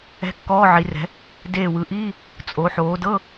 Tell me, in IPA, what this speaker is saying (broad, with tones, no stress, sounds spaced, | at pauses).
ɛ̤˧˥˧ kː ɔː˧˥˧ ʕ i˩˧ r ɛ̤˩˧ | d eː˧˩ w ɯ˩˧ ʔ iː˧˥˧ | t͡sʼ o˩˧ ħ oː˩˧ d ɤ˧˥˧